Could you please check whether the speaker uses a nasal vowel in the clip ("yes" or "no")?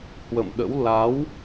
no